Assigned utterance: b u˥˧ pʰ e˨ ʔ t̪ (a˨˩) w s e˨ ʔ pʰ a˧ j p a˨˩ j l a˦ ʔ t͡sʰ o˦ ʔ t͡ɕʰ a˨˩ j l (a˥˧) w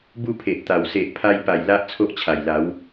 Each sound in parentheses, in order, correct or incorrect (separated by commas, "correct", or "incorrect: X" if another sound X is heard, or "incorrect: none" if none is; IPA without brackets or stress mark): correct, incorrect: a˨˦